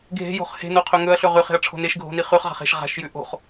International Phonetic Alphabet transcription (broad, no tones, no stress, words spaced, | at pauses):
ɡʱe̤jo̤χ he̤noqʰɵ ŋɵɐ̯ɬɵ ʁʉχe̤ɐ̯ʈ͡ʂʰo̤ neʃɡʱo̤ni χʉχʁa̤χ e̤ʃ ʁa̤ʃjʉ ʔo̤χ